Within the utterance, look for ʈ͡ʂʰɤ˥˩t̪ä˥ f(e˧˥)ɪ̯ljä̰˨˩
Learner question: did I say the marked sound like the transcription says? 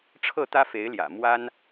yes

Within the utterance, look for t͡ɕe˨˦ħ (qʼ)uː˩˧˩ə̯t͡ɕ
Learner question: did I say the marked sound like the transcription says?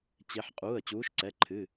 yes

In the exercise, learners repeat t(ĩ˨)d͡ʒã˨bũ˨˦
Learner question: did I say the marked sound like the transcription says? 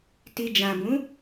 no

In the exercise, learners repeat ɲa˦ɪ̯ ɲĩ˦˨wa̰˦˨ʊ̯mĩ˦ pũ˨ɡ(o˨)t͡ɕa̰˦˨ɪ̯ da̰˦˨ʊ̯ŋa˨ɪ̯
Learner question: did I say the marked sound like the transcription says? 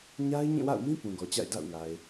no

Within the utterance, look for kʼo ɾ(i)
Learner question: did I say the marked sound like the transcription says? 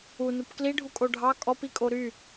no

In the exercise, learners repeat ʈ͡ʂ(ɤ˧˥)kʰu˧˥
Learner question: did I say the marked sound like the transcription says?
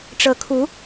yes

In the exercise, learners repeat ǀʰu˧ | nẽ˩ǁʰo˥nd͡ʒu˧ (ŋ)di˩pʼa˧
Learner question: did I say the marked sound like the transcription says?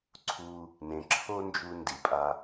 no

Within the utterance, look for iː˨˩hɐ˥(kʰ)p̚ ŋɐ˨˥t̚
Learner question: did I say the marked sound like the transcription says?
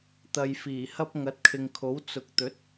no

